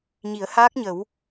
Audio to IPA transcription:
ɲ i˨˩˦ ə̯ h aː˦˥ k̚ ɲ ə˨˩˦ w

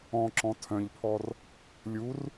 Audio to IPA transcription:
ɔ̃ ǁ ɔ̃ tʰ œ̃ ʎ pʰ ɔ r | lʲ u r

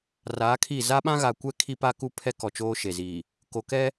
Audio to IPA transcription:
r aː˨˦ kʰ i˦˨ z a˦ ɓ ã˦ ɣ a˨ kʷ ɛ˦ kʰ i˦ p a˦ k u˦ pʰ ɛ˦ k ɔ˨ t͡ʃ oː˦ ʃ e˨ z i˨ | k oː˨ k ɛ˦

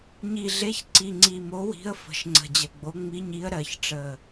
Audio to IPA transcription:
ɲ i˨˩ ɮ e˨˦ ç ǀ i˨˩ ŋ͡ǀ i˨˩ m o˨˦ w i̤˨˦ ə̯ f ə̤˨˩ ʃ ŋ͡ǀ ə̤˨˩ d͡ʑ ə˨˩ ɡ͡b o˨˦ ŋ͡m i˨˦ ɲ i˨˦ ə̯ ɾ ɜ˨˩ ç ʈ͡ʂ ə˨˩

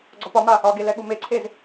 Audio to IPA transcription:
ɡ͡ǀ ɒ p ɒ m a | ɒ ɡ e l ɛ ɠ u m e ǀʰ e z

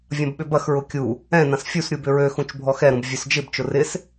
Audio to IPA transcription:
vʲ ɐ̃ b ɓ ʏ b ɐ x ɹ ʊ kʲ u | ɛ̃ n ɐ̃ s fʲ u s ɾʲ u b ʏ ɹ ø x ũ t͡ʃ bʱ ɔ x ɛ ɾ ũ b vʲ ø s d͡ʒ ɪ b t͡ʃ ʊ r ɪ s

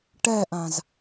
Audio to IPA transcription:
ʈ ɛ ʔ ã z

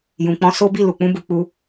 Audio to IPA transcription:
j ũ˨ k͡p ɔ̃˧ s o˦ b i˦˨ l u˨ k͡p ũ˧ b u˨ k͡p u˧

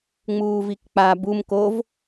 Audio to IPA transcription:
ŋ͡m uː v i k k͡p a b u m k o v

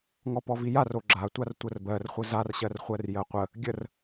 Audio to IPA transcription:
ŋ ɔ p ɔ v i j a r o ɡ͡ǁ a tʷ a r tʷ ə r b ɜ r χʷ ə z a r ɕ ɜ r χʷ ɜ r j ɜ qʷ ə | ɡʲ ə r

